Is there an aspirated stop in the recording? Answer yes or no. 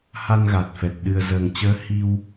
no